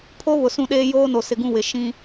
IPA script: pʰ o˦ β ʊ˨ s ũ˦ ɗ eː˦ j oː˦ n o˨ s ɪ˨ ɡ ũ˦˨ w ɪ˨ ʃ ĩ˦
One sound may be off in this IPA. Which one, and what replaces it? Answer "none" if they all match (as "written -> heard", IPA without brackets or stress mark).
none